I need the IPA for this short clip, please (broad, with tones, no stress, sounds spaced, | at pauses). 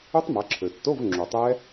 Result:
u˦˥ tˤ m a˩˧ ǁʰ ø˩ tː o˧˥˧ v ŋ͡ǁ u˩ tˤ ɛ˦˥